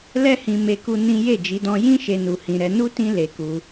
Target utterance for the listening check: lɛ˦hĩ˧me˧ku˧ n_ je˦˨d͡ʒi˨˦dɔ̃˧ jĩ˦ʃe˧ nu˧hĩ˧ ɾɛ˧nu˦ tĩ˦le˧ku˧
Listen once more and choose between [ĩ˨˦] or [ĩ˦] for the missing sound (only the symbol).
ĩ˦